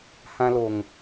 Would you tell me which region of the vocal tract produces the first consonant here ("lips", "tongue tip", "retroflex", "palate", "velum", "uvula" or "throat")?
throat